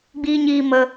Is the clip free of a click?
yes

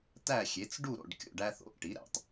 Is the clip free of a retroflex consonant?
no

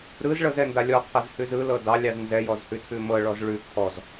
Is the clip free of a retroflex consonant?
no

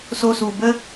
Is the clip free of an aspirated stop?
yes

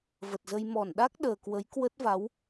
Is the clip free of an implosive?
no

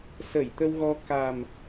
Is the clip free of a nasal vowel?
yes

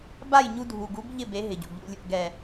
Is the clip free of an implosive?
yes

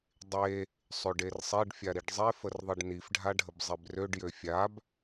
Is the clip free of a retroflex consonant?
no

